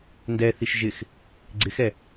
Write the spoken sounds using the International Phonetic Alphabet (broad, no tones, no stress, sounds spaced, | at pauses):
n d ɛː θ i ʃ ʒ ɪ x | ɡ͡ǀ ɪ x ɛ